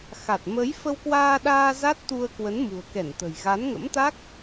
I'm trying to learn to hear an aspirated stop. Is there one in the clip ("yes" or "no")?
no